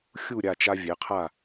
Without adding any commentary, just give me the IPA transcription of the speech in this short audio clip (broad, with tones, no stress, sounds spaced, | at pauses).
xʲ u˥˨ ɾʲ a˥˨ t͡ʃ a˦ vʲ ɛ˩˥ qʰ a˥˨